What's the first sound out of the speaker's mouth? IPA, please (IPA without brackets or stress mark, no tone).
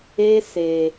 e